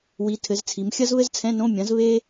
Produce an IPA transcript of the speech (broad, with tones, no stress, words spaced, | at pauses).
wi˩˧ tʰɘ˩˧zt͡sʰi˩˧m xʲɐ˥zβɘ˥zt͡sʰɛ̃˧˥˧nõ˧˥˧ mʲɐ̃˩˥z βe˥